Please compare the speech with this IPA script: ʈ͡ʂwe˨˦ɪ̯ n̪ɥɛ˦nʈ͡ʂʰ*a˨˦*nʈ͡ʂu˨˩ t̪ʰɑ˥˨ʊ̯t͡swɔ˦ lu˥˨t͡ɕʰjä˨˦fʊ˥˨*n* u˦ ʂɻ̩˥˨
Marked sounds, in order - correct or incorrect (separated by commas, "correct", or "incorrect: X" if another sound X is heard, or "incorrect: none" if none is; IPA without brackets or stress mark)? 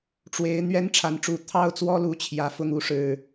correct, incorrect: ŋ